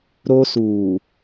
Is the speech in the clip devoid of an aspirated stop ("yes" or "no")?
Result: yes